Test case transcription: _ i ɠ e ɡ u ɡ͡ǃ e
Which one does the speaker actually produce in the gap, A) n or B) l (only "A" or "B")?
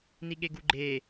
A